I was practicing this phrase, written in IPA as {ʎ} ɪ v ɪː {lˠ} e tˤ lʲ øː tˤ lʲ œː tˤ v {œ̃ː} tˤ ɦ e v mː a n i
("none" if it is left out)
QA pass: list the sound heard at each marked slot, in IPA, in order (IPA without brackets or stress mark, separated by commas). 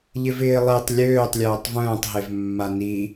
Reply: ʎ, lˠ, œ̃ː